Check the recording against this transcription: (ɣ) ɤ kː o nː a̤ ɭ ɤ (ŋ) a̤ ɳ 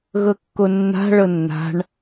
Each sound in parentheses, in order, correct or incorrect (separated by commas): correct, incorrect